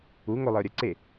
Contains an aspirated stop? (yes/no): no